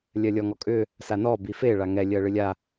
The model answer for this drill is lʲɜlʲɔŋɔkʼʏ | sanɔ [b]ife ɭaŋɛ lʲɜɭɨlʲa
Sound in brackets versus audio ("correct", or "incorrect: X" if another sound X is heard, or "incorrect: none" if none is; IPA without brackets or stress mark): correct